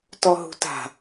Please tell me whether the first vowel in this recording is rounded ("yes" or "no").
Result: yes